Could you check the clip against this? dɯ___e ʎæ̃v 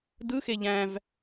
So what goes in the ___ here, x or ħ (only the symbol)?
x